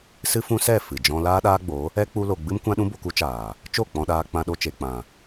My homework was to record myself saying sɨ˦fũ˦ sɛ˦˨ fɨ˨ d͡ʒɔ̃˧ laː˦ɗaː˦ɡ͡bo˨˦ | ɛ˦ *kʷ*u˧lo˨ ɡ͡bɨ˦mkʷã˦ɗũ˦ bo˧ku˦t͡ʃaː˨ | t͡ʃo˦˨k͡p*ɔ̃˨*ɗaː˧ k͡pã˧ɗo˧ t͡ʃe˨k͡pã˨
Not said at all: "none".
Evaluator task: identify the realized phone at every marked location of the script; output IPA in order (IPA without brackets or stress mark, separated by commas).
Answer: k͡p, ɔ̃˧